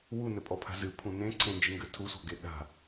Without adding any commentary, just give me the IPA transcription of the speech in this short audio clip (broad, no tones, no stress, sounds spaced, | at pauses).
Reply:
w u n ɘ pʼ ɔ pʰ a̤ z ɨ pʰ ũ n ẽ ǀʰ ẽ n d͡ʒ ɨ ŋ ɡ ɘ tʰ u sʷ a̤ ɡ e ɗ a̤